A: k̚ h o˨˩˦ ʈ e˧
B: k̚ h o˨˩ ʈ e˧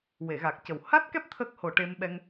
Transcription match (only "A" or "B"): B